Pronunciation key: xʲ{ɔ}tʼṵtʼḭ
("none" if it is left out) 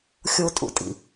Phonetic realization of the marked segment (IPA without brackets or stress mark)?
o